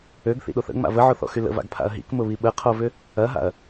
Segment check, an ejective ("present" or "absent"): absent